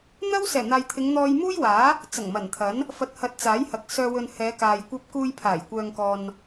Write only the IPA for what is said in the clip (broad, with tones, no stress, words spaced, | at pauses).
n̪ɐ˥wsɛː˨˩n̪aː˨jt̪ʰɪ˨˧ŋ n̪ɔː˧jmuː˥jwaː˨˥ | t͡sɐ˨˩ŋ mɐ˨˩nt̪ʰɐ˨˥n | fɐ˨t̚hɐ˨˥t̚ t͡saː˨˥jhɐ˨k̚ sœː˨wɵ˨n hɛː˨˧kaː˨j kʷɐ˧p̚kuː˧jpʰaː˨˩j kʷœː˨ŋkɔː˨n